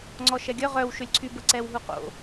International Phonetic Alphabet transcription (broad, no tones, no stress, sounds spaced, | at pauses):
ŋ͡ǀ ɔ ʃ ɛ ɡʲ œ ʁ œ w ʃ ø lʲ ǀʰ y b ə ǀ ɛ w ɦ u q o̰